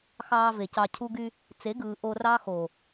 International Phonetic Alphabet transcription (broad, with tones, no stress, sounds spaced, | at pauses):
x ɑː˧ v e˨ c ɑ˧ cʰ u˦ ɡ y˦ | t͡s e˨˦ ɡ ɯː˨ ʔ o˧ r ɑ˦ x o˨